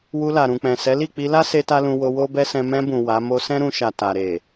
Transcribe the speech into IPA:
w u˧ l a˨ ɾ ũ˨ k͡p ɛ̃˨ s ɛ˨˦ l i˦˨ k͡p i˧ l a˦ s e˦ t a˦ l ũ˧ w o˧ w o˦ b ɛ˦ s ɛ̃˧ m ɛ̃˧ b ũ˨ w a˨˦ m o˧ s ɛ̃˦ ɾ ũ˧ ʃ a˨ t a˨ ɾ e˨

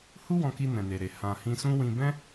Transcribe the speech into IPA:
h u˦ w ɔ̃˧ k i˧ n ɛ̃˨ n e˨ ɾ e˨ h ã˨ h ĩ˧ s ũ˦ w ĩ˧ b ɛ̃˦

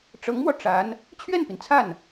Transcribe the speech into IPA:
ʈ͡ʂ ɤ˧˥ ŋ m w ɔ˧ ʈ͡ʂ a˧˥ n | t͡ɕʰ ɥ ɛ˥˩ n p i˩ n t͡sʰ a˥˩ n

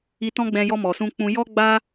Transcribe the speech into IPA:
i˧ t ɔ̃˦ ɡ͡b ɛ̃˧ j ɔ˧ m ɔ˨ s ũ˧ k͡p ũ˧ j ɔ˧ ɡ͡b a˧

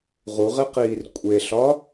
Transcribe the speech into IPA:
ʁ u ʁ e q iː r kʷʼ e ɬ ɒ

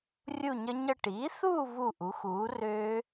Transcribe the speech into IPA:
rʲ u˥˧ ɲ ə˦˥ ɲ ə˥˧ ʈ iː˩˥ θ uː˥˧ v u˥˩ ʔ u˩˥ x uː˩˥ r ø˦˥

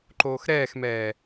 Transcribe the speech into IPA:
ǃ oː x ɾ ɛː x m ɛː

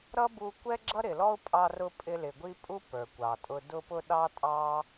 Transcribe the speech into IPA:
ɾ ʌ˦ b u˧ kʷ ɛ˦ ɡ͡ǁ ʌ˦ ɾ ɪ˨ l ɔ˦ ʊ̯ pʼ ɑ˧ r ʊ˧ pʼ ɪ˧ l ɪ˨ ɡʷ i˦ pʼ u˦ p ə˞˨ kʷ ɑ˨ tʼ ʊ˧ d ʊ˧ p ʊ˧ ɗ ɑ˦ tʼ ɑ˦

